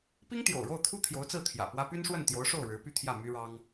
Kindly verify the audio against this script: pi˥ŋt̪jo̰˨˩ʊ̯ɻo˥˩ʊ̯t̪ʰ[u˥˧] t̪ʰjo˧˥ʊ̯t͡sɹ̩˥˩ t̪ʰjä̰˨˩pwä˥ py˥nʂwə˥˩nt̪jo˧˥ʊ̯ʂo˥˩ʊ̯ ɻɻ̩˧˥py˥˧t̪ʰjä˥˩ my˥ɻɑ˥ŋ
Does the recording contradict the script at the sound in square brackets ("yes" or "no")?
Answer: yes